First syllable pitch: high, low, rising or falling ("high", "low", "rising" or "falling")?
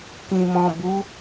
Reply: low